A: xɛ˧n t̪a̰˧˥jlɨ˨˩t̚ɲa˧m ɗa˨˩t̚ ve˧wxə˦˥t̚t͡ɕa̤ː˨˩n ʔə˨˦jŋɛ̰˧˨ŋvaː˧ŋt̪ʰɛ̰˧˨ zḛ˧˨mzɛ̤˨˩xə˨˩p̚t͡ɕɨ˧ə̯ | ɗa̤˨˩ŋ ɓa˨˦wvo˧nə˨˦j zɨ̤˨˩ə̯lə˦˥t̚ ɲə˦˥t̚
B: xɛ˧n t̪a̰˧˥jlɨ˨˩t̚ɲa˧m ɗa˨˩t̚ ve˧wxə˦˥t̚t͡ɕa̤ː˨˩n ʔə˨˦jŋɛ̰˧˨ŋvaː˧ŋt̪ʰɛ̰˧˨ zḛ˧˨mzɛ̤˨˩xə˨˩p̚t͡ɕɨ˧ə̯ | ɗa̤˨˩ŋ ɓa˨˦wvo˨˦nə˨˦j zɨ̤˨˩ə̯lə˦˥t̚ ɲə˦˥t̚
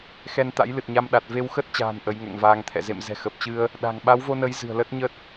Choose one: A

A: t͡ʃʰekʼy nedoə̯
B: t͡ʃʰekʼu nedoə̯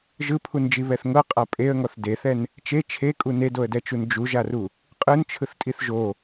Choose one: B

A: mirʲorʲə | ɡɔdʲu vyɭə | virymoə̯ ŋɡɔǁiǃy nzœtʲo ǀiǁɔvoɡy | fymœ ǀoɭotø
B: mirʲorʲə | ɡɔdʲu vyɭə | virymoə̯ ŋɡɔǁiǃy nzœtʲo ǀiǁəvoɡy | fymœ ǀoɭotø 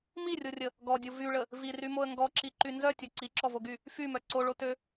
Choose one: A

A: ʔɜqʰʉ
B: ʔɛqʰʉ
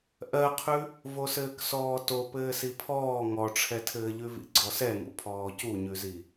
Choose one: A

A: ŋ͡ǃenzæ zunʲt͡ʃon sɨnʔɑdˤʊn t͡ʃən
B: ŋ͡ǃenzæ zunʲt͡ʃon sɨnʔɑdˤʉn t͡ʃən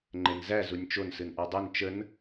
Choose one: B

